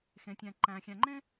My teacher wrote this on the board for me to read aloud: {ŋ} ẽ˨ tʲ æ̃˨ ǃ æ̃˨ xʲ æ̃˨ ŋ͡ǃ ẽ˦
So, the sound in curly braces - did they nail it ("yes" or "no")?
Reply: no